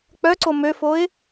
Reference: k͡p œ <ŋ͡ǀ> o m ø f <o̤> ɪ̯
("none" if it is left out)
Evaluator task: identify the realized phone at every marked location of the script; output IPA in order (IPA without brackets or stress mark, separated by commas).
ǀ, o